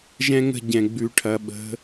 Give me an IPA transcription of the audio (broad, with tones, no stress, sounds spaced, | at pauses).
ʒ ɛ̃˦ ŋ ə̤˦˨ ɟ ɛ̃˨ ɡ͡b ʉ˨ ʈʰ ɐ˨ ɓ ə̤˨˦